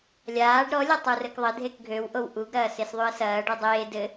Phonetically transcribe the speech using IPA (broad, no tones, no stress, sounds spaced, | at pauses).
lʲ aː ɖ ɾ ɔ lʲ ɐ tˤ u r ɘ k ðˤ ɘ dʱ e k ɡʱ ø w ʔ o w ʔ u ɡ ɾ ɐː s e s ðˤ y ə̯ s ɐː ɖ y dˤ eː d ɘ